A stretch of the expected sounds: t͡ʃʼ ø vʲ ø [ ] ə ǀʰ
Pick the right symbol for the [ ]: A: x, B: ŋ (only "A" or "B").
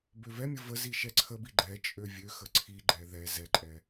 A